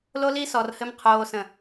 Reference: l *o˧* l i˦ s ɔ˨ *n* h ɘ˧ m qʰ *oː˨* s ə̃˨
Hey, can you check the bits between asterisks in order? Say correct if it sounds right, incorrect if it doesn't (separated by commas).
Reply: incorrect, incorrect, correct